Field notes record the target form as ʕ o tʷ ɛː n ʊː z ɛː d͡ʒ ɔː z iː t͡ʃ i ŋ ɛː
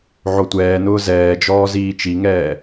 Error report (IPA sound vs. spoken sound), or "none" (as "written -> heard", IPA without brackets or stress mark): none